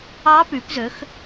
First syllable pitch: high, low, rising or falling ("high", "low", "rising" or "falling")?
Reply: rising